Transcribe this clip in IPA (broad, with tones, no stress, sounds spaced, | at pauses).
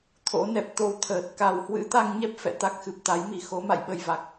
t̪ʰ o̰˧˥ n ɛ˨˩ p̚ t̪ o˧ w t̪ʰ əː˨˩ t̚ k a˨˩ w h w ɨ̰˧˥ t̪ a˧ ŋ ɲ ɛ˦˥ p̚ f ɛ̰˧˨ t̪ a˦˥ k̚ x ɨ˨˩ p̚ t̪ a˨˦ j m i˨˩ x o˨˦ m a̰˧˨ j ɓ ə˨˩ j v a˨˩ k̚